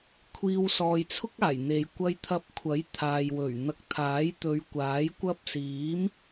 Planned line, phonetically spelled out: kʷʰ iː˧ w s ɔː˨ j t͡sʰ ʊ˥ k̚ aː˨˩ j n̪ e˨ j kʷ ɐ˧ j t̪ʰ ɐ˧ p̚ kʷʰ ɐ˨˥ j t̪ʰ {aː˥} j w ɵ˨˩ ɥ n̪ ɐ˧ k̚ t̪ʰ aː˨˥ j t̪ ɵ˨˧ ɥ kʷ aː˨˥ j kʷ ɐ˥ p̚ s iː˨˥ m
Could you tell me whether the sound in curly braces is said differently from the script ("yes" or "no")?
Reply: yes